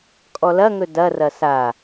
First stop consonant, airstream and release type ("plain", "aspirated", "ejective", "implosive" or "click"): ejective